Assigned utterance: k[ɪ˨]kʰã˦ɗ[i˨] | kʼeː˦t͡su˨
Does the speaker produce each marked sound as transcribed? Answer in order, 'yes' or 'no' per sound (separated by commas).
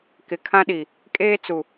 yes, yes